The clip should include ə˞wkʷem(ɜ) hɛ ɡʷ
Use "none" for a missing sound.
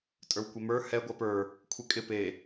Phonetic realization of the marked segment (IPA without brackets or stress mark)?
ə˞